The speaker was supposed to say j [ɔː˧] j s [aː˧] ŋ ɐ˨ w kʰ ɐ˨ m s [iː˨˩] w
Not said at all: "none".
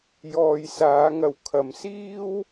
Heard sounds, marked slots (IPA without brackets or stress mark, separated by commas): ɔː˨, aː˨˧, iː˥